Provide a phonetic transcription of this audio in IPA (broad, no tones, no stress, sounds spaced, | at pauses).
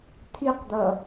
t̪ʰ i q d̪ ʌ